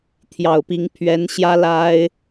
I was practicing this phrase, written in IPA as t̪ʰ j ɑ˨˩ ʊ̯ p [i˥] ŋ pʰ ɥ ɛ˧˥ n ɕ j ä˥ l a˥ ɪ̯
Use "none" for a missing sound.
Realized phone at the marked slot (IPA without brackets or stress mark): i˧˥